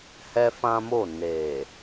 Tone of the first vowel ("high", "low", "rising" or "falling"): high